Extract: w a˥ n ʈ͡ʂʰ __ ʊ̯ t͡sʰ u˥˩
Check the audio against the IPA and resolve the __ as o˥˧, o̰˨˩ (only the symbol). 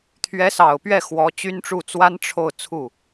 o˥˧